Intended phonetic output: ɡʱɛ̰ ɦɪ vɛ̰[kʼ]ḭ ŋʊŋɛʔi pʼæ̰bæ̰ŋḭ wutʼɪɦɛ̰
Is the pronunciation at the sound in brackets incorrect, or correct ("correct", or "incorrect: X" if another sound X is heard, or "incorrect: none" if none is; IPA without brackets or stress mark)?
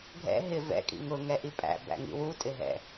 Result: correct